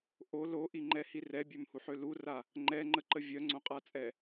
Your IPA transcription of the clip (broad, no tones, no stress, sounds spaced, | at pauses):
ʔ o l o ʔ i ŋ͡ǃ ɛ h i r ɛ bʲ ø m h u ħ ø l u r a | ŋ͡ǃ ɛ ŋ͡ǃ ə ǃ ə vʲ œ ŋ͡ǀ õ qʼ a t͡sʼ ɛ